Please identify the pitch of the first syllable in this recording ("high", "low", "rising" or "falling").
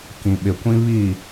low